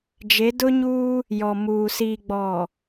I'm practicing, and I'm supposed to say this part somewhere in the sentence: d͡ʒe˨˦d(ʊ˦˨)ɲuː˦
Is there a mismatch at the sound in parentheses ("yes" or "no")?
yes